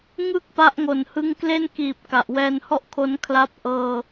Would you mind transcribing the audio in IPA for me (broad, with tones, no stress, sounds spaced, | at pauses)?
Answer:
ŋ ɯ˥˩ k̚ p a˦˥ ʔ ŋ o˨˩ n h ɯ˦˥ ŋ k l e˥˩ n k iː˨˩ p̚ k a˨˩ ʔ w ɛː˧ n h ɔ˥˩ ʔ kʰ o˦˥ n kʰ l a˦˥ p̚ ʔ ɤː˧